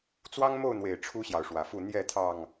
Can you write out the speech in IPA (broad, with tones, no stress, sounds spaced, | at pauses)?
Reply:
t͡s w ɑ˦ ŋ m o˥˨ ʊ̯ n̪ w e˨˩ ɪ̯ ʈ͡ʂʰ u˦ ɕ j ɑ˨ ʊ̯ ʂ w ä˨˩ f u˥˨ n̪ j ɛ˥˨ t̪ʰ ɑ˨˩ ŋ